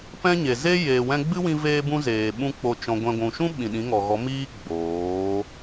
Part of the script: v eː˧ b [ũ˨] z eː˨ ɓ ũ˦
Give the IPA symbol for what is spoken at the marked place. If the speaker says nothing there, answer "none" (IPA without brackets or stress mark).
ũ˧